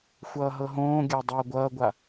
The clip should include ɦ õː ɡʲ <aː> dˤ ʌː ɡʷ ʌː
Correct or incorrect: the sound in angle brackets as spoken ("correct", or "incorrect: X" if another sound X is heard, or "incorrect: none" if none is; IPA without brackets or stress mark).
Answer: incorrect: a